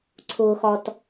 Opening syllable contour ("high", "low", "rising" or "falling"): low